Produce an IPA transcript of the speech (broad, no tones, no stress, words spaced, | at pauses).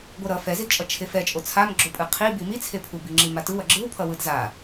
ɡʷʌɾʌ fɛzidt͡ʃʼʌ t͡ʃʰefɛt͡ʃʼo t͡sʰamɡ͡ǁopʼɯ qʰi bimit͡sʰepʰu biŋ͡ǁimatɯw ʌɡ͡ǁɯwpʰʌ wɯdza